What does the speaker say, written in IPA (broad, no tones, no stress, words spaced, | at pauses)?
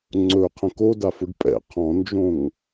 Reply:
ŋ͡ǀɵqʰə̃k odafʊɖ pʼɛ̰ qʰɔ̃nd͡ʒõŋ